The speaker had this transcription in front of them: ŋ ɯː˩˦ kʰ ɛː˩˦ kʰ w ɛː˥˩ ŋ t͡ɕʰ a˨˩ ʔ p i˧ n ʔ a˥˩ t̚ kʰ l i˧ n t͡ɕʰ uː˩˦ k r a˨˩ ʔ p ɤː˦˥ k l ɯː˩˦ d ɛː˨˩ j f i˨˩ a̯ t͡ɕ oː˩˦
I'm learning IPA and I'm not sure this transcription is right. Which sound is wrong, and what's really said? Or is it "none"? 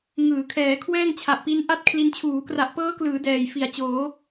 none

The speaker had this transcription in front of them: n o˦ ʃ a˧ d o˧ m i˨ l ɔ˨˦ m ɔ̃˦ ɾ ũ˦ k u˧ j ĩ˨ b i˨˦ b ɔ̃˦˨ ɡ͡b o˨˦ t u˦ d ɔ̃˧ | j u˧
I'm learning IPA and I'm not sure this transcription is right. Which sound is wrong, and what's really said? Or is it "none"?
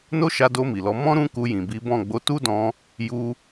none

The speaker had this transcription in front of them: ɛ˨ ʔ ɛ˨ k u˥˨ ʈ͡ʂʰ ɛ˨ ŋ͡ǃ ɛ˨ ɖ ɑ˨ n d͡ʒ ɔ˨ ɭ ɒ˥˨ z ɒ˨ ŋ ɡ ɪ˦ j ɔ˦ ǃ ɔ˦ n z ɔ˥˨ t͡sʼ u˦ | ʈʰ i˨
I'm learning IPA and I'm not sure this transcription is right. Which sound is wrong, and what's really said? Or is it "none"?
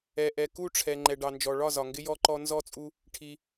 none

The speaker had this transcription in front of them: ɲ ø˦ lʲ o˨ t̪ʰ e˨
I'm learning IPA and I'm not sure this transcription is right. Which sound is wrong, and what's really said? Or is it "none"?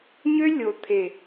none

